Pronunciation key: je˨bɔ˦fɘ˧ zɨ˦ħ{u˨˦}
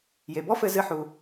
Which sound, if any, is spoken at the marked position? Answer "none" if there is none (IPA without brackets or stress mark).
u˧